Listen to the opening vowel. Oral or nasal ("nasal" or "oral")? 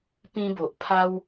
nasal